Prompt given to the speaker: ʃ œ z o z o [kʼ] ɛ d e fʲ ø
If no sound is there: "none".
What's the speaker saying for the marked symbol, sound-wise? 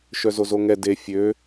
ŋ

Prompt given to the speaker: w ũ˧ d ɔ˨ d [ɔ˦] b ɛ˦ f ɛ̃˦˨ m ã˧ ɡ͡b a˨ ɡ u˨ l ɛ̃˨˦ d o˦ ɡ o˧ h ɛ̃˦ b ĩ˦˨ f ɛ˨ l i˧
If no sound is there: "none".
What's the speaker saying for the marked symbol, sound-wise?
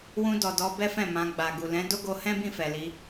ɔ˧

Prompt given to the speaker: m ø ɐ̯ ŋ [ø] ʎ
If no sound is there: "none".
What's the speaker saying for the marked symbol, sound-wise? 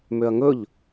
ɵ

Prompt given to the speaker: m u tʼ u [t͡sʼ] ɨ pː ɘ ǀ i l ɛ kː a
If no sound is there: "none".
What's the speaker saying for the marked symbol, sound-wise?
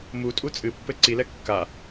t͡sʼ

